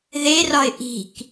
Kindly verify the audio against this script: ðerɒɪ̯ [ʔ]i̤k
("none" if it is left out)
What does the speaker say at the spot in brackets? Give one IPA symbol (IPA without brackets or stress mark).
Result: ʔ